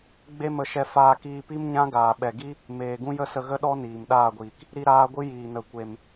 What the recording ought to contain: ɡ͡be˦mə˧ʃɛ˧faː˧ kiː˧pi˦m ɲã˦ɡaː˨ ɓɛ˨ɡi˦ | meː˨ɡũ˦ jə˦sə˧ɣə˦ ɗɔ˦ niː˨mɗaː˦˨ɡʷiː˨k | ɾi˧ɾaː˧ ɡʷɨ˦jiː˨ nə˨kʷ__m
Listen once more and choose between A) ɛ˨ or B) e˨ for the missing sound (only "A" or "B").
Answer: B